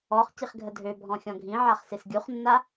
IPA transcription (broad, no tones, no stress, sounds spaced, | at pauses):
ɔ χ c i χ ɡʱ ə dʱ ø bʱ ɔ̃ xʲ ɔ̃ ɡʱ ĩ ʕ a χ s e s ɡʲ u χ nː a